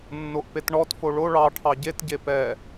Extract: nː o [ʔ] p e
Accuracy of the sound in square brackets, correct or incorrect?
correct